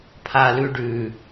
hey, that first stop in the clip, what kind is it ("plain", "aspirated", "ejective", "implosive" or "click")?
aspirated